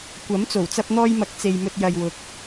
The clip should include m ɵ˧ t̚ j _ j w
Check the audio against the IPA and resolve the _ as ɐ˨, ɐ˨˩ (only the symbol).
ɐ˨